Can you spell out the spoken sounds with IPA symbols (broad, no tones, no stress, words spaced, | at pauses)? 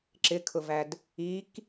ǁɪkʰʊvæd | ik